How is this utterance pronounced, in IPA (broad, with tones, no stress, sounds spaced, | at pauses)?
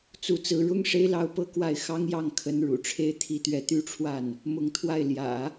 t͡s u˧˥ t͡s ɹ̩˧˥ ɻ ʊ˥ ŋ ʂ e˥ ɪ̯ l ɑ˥ ʊ̯ p ɤ˥˧ k w a˥˩ ɪ̯ x ɑ˥ ŋ j ɑ˥˩ ŋ kʰ ə˧˥ n ɻ ṵ˨˩ ʈ͡ʂʰ e˥ ɪ̯ t̪ʰ i˥ t̪ ɥ ɛ˥ t̪ y˥ ʈ͡ʂʰ w a˥˩ n | m ʊ˧˥ ŋ t̪ʰ w a˥˩ ɪ̯ l j ä̰˨˩˦